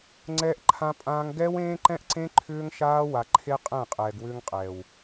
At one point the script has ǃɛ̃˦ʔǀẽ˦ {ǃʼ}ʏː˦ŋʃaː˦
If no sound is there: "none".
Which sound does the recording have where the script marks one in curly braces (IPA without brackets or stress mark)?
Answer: ǃʰ